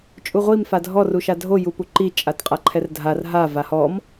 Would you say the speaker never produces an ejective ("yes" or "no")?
no